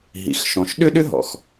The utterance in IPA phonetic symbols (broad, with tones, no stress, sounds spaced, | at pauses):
ɦ ḭ˩ x ʃ ɔ̃˩ ʃ ɗ ʏ˥ ɗ ʏ˥ ɦ ɔ̰˩ x